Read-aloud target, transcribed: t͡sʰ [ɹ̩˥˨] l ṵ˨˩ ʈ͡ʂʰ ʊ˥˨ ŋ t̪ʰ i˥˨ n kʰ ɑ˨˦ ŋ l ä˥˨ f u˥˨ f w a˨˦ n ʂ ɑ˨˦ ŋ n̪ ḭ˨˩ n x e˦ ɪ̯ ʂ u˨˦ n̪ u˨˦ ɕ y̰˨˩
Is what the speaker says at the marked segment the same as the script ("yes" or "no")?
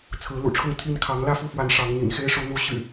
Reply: no